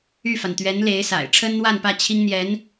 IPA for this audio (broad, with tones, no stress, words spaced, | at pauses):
y˥˩fa˩n t̪ɥɛ˧˥nle˧˥ɪ̯sa̰˨˩ɪ̯ ʈ͡ʂʰə˥nn̪wa˥˧npä˥˩ t͡ɕʰi˥ŋn̪jɛ˧˥n